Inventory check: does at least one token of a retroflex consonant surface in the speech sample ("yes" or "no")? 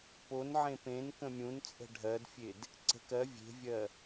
yes